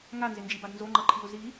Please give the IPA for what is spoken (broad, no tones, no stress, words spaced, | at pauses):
ŋanzɪnd͡ʒibad nzoŋ͡ǃʌǃʰiʊ̯ zi